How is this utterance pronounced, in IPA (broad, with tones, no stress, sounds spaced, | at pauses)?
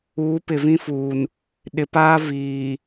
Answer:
uː˨˦ p ɪ˨ v ĩ˦ f uː˨ n | ɗ ɪ˨ p aː˦ v iː˨